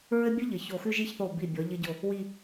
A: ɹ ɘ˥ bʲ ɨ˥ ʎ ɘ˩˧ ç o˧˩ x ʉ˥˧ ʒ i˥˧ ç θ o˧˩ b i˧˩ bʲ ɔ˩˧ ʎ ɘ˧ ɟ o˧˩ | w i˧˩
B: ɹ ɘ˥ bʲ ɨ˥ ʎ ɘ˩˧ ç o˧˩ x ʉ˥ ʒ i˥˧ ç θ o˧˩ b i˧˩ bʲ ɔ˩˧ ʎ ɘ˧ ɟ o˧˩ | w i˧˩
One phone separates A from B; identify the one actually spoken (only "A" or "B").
A